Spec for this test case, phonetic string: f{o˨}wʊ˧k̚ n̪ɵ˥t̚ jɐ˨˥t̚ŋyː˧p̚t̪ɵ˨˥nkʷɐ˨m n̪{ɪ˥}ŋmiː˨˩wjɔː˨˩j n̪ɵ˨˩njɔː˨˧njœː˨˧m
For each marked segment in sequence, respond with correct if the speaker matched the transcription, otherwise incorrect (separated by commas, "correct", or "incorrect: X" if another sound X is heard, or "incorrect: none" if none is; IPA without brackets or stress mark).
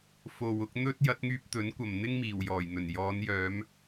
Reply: correct, correct